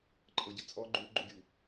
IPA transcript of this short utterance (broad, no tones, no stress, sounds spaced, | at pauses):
ǃʼ ɤ ɟ ə t͡sʼ ɔ ɡ͡ǃ u ɡ͡ǃ u ɡʲ u